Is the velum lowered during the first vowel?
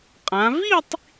yes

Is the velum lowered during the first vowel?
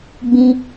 yes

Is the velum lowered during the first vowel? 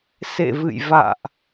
no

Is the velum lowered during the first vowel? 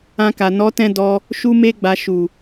yes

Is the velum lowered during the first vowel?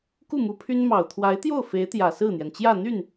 no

